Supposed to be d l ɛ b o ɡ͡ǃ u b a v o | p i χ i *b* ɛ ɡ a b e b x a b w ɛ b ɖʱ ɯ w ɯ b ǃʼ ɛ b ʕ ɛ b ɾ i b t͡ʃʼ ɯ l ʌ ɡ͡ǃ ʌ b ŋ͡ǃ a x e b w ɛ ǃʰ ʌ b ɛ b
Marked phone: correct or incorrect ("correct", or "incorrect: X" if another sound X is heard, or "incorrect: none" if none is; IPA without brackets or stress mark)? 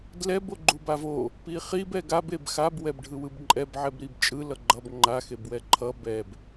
correct